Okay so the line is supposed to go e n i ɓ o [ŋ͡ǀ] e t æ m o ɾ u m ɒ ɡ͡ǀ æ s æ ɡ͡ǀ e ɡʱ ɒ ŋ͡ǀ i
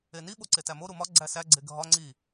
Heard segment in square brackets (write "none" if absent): ǀ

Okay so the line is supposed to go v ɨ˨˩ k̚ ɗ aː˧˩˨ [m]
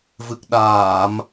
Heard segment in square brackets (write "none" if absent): m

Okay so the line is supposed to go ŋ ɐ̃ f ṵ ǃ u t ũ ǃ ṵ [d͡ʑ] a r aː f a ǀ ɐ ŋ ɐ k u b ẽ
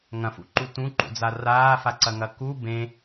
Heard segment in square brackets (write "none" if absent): d͡z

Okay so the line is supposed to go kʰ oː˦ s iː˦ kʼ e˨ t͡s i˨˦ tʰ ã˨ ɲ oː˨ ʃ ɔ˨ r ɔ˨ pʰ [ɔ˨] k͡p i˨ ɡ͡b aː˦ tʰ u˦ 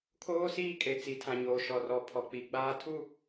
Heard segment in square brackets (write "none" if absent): ɔ˨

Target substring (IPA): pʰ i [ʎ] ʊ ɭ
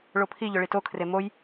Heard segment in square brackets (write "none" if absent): ʎ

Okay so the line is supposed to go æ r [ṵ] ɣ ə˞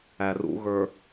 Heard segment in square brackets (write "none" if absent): ṵ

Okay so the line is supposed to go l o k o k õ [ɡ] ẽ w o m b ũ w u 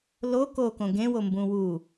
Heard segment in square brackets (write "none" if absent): ɡ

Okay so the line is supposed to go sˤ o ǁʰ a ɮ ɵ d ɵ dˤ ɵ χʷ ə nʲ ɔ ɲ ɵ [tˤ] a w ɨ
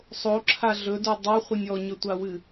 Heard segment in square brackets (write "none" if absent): tʷ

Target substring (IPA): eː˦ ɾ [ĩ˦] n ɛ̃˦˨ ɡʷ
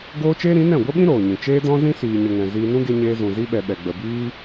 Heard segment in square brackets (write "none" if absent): ĩ˨˦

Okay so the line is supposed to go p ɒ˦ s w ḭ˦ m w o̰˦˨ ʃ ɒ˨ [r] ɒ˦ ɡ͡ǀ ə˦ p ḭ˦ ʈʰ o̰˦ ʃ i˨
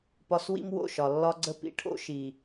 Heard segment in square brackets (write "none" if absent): lː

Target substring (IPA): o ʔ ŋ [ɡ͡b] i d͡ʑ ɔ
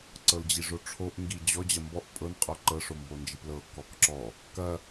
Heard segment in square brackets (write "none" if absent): ɡ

